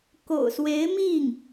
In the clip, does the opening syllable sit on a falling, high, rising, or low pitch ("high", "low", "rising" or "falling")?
low